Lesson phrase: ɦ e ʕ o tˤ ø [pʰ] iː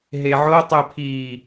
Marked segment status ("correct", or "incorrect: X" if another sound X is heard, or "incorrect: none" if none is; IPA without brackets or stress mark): correct